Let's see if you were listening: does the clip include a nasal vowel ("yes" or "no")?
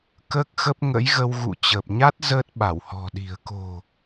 no